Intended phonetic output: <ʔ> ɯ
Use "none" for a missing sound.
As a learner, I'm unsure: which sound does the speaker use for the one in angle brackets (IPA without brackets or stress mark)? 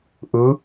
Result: ʔ